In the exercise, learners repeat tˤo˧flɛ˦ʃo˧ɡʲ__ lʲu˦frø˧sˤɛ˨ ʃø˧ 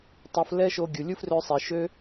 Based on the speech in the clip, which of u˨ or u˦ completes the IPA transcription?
u˨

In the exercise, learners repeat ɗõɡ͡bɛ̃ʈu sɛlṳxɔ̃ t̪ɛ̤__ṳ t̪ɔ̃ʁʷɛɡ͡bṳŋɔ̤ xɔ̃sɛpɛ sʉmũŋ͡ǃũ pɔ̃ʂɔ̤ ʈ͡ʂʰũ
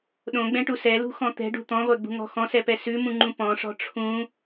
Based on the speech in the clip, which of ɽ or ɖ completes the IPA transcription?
ɖ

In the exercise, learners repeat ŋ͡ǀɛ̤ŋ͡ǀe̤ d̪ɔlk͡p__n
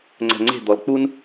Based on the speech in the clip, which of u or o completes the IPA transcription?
u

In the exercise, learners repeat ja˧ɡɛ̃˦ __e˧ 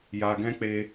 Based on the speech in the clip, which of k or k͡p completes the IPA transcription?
k͡p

